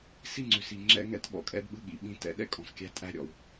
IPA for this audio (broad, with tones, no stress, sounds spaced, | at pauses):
s i˥ ŋ͡ǀ ʉ˩ s i˨ ŋ͡ǁ ɛ̰˥ ŋ ɛ̰˥ t ɓ ɔ̰˩ kʼ ɛ̰˥ d ɓ ɯ˥ ɠ ḭ˩ ɓ ĩ˦ t ɛ̰˦ ɗ ɛ̰˥ kʼ ɔ̃˨ s kʲ æ˦ tʼ æ˦ ɾʲ ɔ̰˩ w